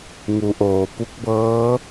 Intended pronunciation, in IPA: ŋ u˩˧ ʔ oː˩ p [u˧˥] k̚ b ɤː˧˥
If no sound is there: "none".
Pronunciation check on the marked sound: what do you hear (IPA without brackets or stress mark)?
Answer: u˧˥